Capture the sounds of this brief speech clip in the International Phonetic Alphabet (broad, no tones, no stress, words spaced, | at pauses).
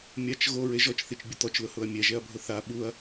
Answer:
mʲat͡ʃ ɣoɹe ʒɔt͡ʃθit͡ʃbʲʊ t̪ɔt͡ʃlʊhʊɐ̯ mʲɛʒɛɐ̯bʱʊ θa ɓuɐ̯